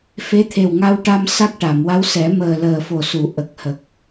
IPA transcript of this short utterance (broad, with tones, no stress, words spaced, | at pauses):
fe˧˥t̪ʰe˨˩wŋa˧wʈa˧m sa˦˥k̚ʈa˨˩˨m wa˧˥wsɛ˨˩˦məː˨˩ləː˨˩ fo˨˩su˨˩˨ ʔə˨˩k̚hə˨˩k̚